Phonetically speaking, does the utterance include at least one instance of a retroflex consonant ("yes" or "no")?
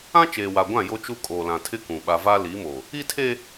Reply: no